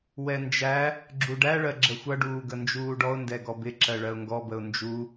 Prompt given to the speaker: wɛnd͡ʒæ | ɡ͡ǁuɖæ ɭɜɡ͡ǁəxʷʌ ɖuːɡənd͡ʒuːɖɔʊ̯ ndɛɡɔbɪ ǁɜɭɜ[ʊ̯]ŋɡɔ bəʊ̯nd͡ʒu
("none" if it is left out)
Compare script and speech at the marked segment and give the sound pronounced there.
ʊ̯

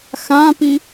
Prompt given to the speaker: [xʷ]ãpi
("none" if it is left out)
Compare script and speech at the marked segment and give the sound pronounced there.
x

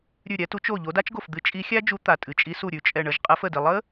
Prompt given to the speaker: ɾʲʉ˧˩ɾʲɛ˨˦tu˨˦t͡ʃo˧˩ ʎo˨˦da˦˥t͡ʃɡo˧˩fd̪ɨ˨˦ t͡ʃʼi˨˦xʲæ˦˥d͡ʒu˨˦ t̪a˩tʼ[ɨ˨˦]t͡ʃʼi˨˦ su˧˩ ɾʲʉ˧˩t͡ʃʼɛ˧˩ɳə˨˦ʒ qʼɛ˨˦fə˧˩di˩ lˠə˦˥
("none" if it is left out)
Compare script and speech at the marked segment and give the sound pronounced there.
ɨ˩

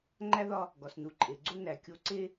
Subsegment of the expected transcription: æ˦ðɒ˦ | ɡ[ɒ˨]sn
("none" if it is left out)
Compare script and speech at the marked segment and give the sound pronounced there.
ɒ˨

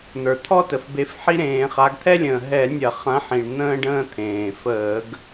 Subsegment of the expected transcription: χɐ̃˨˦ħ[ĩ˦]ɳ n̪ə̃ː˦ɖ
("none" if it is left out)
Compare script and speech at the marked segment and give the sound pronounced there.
ĩ˩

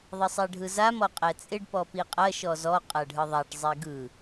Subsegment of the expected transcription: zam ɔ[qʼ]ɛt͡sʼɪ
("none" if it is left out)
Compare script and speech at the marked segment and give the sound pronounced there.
qʼ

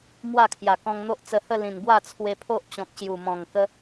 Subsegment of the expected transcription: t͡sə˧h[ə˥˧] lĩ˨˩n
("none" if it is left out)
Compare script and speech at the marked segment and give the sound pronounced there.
ə˥˧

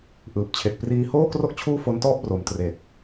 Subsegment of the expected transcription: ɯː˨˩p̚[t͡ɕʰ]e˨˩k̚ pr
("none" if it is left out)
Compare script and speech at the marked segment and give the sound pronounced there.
t͡ɕʰ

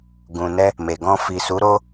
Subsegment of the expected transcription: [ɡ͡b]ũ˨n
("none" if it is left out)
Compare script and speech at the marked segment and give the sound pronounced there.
ɡ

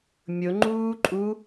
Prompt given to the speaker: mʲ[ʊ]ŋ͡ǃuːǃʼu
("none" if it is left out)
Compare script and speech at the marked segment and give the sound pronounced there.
ʊ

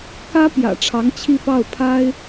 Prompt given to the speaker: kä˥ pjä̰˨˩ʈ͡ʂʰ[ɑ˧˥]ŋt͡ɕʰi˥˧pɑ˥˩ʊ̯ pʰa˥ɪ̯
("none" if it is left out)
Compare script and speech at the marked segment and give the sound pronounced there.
ɑ˧˥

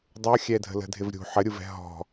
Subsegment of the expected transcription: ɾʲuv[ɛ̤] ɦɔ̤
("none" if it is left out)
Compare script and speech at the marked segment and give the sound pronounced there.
ɛ̤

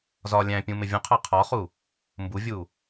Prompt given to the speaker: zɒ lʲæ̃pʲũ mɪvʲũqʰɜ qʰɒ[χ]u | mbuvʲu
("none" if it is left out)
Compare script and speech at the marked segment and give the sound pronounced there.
χ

